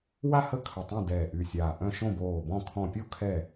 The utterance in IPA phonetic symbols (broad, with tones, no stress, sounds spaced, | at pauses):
w a˥˨ h ə˥˨ kʰ ə˧˩ tˤ õ˥˨ d ɛː˧˩ ʔ y˧˩ sʲ aː˧˩ ʔ œ̃˥˨ ʃ õ˥˨ b oː˧˩ b ɔ̃˥˨ kʰ ɔ̃˧˩ pʲ o˥˨ kʰ ɛ˥˨